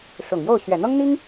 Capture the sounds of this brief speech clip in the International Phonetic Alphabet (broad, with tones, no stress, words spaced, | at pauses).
ʂʊ˨˩ŋjo˥˩ʊ̯ ɕɥɛ˨˩n̪ɤ˥ŋn̪i˥ŋ